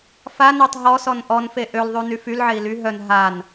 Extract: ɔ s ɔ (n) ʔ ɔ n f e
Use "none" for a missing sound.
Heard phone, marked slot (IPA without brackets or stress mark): n